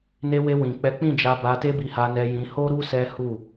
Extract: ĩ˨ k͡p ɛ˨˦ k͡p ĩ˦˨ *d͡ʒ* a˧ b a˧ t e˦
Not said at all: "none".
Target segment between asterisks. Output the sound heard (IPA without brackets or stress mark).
d͡ʒ